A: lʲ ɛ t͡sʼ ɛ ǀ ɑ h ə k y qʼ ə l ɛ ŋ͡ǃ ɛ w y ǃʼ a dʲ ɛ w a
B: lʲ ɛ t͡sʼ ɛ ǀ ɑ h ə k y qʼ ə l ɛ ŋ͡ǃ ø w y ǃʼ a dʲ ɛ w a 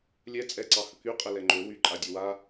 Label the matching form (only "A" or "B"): B